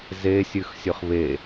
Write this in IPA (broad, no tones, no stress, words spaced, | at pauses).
zesʲʉxsʲɵχ βe